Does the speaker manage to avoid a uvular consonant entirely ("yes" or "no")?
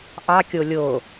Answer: yes